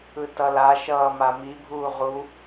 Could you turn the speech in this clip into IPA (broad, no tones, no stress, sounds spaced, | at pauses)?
ɯ t ʌ l a ʃ ʌː m a m i bʱ uː ʁ u